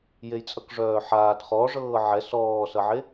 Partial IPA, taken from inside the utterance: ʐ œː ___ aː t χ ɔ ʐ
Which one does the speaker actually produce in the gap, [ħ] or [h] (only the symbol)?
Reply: ħ